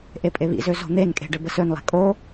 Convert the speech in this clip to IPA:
ʔepʼeβḭzø zo̤n̪enkʼe̤ ɖɘbəsønlˠe̤ kʼo

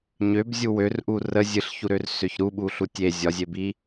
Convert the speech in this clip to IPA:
ɲøbzʲu wørʔu rə zʲɨɬçuɾør søçɾuɓu ɬutʲe zʲɒzʲebi

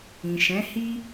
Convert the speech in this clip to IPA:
ĩ˨ʃɛ̃˨˦hi˦

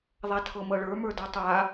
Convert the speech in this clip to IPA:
ðˤatʰɤmɤɭə˞ mə˞dɤtˤa

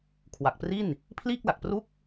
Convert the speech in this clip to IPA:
kʰwa˨˩k̚pri˥˩n | pʰliː˥˩k̚la˨˩k̚pru˥˩k̚

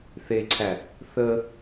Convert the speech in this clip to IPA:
θeǀʰæ | θə

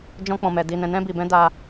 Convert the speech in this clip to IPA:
d͡ʒɔ̃˦k͡pɔ̃˧mɛ˧ di˧nɛ̃˧nɛ̃˦ bi˧bɛ̃˦ da˧

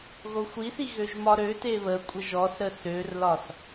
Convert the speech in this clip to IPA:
ɣoxʷisi ɣøʒmɒɾøte βəkʷʼə ʒɔsɾə sørlɒs

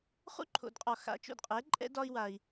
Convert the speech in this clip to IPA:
χṵ˦˨ǃʰo̰˨dqʼɒ˨ xa̰˨˦t͡ʃo̰˨dqʼɛ˨˦ ǃʼɛ̰˦ dɒ˦i̯wa˧i̯

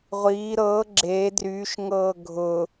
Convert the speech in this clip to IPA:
ʁʷiː ɾɤː ɡ͡ǁeː dryːʃŋɤː ɡʱʊ

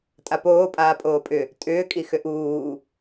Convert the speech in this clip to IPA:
tʼapoː pʼaːpʼoːpʼʏ | tʼʏːkʼi xʏʔuː

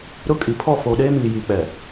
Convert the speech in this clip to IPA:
ɾʊ˦kʼi˨ pʰɔ˦˨foː˨ɗeː˦ miː˨jiː˨k͡pɛ˨

